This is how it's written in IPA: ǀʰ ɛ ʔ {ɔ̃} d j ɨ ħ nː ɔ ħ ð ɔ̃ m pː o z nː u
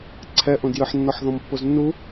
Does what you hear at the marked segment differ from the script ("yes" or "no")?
yes